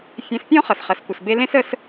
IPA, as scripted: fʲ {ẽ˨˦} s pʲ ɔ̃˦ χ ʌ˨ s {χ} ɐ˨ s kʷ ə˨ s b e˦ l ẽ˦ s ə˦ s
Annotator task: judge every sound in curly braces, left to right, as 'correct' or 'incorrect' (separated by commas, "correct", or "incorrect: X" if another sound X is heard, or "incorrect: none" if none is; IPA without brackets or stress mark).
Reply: correct, correct